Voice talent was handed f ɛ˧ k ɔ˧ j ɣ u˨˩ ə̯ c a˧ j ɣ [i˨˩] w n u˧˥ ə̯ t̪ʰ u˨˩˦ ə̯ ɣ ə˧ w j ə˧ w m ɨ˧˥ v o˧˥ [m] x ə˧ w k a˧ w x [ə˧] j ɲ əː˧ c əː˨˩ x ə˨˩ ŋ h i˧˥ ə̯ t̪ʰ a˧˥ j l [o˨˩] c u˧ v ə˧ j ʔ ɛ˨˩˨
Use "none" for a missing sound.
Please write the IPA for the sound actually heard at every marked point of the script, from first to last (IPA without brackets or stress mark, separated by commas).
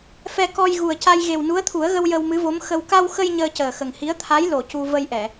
e˨˩, m, ə˧, o˨˩